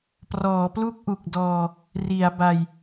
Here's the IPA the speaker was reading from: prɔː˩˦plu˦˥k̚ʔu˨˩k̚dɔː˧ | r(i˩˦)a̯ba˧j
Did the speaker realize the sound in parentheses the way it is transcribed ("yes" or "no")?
yes